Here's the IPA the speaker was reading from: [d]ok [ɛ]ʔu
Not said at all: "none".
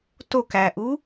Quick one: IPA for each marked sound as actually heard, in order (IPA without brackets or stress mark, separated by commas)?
t, æ